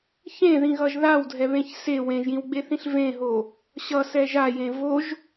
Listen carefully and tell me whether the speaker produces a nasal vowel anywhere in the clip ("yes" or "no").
yes